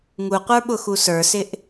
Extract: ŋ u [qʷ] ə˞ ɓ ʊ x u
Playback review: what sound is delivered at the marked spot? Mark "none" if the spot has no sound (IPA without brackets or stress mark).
qʷ